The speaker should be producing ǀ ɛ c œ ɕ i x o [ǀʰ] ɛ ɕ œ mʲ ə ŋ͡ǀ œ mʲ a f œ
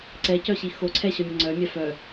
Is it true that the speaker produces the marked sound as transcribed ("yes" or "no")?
yes